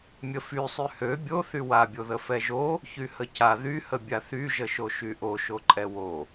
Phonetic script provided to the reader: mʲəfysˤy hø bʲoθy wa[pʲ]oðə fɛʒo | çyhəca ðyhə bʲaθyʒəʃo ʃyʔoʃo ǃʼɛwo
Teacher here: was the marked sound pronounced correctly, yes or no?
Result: no